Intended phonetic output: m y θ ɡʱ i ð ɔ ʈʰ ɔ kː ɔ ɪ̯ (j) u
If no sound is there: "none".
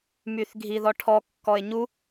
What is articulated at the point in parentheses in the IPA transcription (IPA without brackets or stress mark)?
ɲ